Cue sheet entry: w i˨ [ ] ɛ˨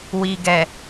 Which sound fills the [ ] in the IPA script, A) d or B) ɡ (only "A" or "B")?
B